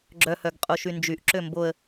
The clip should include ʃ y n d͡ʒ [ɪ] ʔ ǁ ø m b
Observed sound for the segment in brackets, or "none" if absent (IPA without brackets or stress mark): y